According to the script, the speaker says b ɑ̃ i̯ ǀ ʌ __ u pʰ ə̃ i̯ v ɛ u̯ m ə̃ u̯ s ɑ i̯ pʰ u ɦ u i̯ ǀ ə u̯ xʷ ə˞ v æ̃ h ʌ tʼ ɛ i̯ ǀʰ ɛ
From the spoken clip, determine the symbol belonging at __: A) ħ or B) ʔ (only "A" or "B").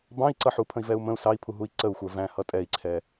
A